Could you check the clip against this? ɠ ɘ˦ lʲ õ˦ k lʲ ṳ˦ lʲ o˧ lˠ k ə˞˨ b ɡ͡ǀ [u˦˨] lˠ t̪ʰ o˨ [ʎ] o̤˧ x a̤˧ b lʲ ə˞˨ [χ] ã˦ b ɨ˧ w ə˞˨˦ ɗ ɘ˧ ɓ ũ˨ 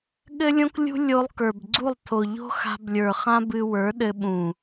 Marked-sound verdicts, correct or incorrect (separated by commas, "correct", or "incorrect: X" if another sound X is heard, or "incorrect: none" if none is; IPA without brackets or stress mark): correct, correct, correct